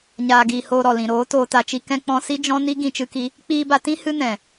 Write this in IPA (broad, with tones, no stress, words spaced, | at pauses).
ɲaː˨ɡiː˨ hoː˧ɾɔ˨lĩ˨ ɾoː˨˦ toː˧ta˧t͡ʃi˦ kɛ̃˦k͡pɔ̃˦ si˦d͡ʒɔ̃˦ ni˦ ɡĩ˧t͡ʃɨ˦ki˦ | k͡piː˧ba˧tĩ˦ hɨ˦nɛ̃˨